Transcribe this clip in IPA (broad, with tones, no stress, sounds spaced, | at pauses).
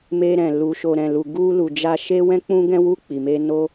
m e˧ ɾ ɛ̃˨ l u˨ ʃ o˨ ɾ ɛ̃˨ l u˨ ɡ u˧ l u˨ d͡ʒ a˧ ʃ e˦ w ɛ̃˦ k͡p ũ˦ ɡ ɛ̃˦ w u˦˨ k͡p i˨ m e˧ n o˦